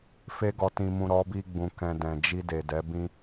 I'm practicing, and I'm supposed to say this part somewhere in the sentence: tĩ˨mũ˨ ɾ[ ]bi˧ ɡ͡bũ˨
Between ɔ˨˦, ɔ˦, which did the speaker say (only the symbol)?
ɔ˨˦